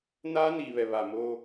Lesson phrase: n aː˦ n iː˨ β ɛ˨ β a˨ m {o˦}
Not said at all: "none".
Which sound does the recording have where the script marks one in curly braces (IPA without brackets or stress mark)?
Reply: o˦